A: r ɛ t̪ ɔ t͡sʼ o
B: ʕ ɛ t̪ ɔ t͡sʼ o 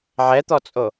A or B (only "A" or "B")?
B